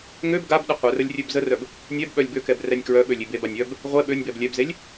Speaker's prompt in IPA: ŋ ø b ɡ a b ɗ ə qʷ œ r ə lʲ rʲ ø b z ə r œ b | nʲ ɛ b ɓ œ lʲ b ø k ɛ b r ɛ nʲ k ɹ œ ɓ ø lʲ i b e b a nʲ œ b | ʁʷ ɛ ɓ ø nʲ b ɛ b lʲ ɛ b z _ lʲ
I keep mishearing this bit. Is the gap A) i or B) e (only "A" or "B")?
B